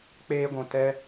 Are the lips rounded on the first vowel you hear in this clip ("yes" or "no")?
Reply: no